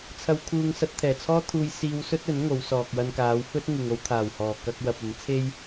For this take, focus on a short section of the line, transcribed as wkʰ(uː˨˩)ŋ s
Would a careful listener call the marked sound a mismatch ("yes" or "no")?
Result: yes